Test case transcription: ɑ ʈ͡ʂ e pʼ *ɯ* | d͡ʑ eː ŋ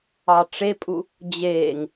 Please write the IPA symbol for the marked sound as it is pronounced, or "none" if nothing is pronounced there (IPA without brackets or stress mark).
u